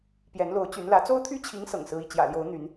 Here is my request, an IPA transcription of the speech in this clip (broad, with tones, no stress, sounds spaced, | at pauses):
p j ɛ˧˥ n l o˧˥ ʊ̯ t͡ɕ y˧˥ n l ä˧˥ t͡s o˥ ʊ̯ t̪ʰ y˥ t͡ɕʰ i˧˥ ŋ s ɤ̰˨˩ ŋ s ɹ̩˥ i˥˩ t͡ɕ j ä̰˨˩ l j o˧˥ ʊ̯ n̪ y˧˥ n